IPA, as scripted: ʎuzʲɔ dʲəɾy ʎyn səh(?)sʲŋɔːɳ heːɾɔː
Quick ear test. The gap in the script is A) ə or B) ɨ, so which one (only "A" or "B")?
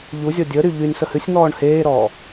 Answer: B